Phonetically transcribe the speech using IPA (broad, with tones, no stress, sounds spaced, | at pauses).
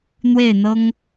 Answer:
n̪ w e˥˩ ɪ̯ n̪ ɤ˥ ŋ